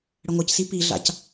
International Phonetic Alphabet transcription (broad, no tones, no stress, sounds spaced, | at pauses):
ɽ ə ŋʷ ə c s i p i ɮ a̰ c